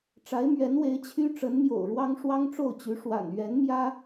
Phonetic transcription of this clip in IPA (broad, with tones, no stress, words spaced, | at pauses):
ʈ͡ʂa˧˥ɪ̯mɥɛ˧˥nwe˧˥ɪ̯ t͡ɕʰy˥ ʈ͡ʂə˧˥nmjo̰˨˩ʊ̯ɻwɑ˥ŋ ʂwɑ˥ŋʈ͡ʂo˥˩ʊ̯t͡ɕy˧˥ ʂwa̰˨˩nɥɛ˧˥nmjä˥